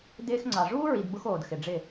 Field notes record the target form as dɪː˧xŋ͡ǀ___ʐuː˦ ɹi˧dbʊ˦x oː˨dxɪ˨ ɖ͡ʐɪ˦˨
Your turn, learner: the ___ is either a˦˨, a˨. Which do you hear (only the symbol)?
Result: a˨